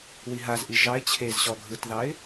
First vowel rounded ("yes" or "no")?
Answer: no